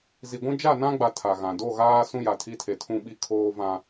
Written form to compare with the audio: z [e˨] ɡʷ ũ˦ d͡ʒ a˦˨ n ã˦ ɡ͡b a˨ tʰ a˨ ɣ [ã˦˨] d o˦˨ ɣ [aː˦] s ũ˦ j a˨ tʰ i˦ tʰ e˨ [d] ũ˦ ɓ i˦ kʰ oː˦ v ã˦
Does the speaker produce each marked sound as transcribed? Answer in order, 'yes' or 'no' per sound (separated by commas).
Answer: no, no, yes, no